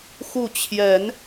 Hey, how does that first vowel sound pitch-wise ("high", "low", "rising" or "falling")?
falling